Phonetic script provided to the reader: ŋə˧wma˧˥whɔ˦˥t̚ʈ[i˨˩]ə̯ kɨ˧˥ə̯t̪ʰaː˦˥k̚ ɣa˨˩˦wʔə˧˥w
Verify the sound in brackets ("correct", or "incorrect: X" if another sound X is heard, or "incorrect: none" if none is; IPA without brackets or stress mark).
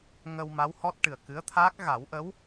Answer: incorrect: ɨ˨˩